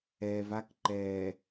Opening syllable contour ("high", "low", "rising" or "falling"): low